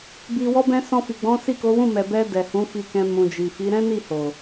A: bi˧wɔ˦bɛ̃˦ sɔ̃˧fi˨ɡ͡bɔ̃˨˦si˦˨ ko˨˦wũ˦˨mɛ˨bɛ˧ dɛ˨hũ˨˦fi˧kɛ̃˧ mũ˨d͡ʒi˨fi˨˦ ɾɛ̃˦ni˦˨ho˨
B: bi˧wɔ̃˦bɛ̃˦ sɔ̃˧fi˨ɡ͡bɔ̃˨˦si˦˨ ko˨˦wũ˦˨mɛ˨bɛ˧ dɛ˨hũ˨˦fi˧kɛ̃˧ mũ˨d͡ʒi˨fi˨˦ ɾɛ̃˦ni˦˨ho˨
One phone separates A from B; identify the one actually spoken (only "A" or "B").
A